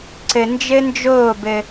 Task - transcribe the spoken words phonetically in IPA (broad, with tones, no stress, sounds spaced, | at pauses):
ǀ ɘ˨ n d͡ʒ ɘ˦ n d͡ʒ oː˦˨ b ɘ˦